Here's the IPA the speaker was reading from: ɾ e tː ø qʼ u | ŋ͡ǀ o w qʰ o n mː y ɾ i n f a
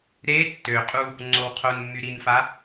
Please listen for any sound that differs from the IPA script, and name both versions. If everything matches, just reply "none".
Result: none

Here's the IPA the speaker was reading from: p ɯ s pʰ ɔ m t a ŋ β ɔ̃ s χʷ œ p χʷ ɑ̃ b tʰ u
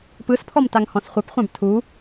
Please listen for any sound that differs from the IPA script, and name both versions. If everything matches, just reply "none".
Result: β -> h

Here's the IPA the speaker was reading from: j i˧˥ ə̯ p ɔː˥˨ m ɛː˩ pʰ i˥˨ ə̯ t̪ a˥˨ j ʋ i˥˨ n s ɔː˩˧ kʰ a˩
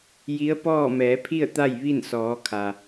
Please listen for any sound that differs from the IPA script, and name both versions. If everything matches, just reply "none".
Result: ɛː˩ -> ɛː˩˧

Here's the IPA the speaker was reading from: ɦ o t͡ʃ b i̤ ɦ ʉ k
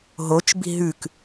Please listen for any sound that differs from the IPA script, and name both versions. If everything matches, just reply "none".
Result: none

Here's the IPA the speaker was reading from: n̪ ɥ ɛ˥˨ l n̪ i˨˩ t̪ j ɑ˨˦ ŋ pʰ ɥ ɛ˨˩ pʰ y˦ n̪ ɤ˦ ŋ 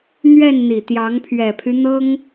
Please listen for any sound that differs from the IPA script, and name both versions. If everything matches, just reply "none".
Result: l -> n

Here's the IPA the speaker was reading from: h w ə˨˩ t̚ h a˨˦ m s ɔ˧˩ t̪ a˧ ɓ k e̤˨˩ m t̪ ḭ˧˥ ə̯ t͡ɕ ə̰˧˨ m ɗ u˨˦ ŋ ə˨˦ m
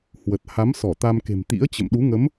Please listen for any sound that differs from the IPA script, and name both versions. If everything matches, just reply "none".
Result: ɓ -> m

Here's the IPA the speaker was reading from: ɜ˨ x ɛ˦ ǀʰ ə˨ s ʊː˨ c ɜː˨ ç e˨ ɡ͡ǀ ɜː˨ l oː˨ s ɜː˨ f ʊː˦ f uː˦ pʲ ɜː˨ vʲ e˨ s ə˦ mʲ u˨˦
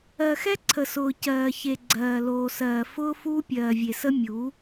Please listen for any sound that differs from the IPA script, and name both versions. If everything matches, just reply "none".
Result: none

